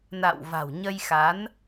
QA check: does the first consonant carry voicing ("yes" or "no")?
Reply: yes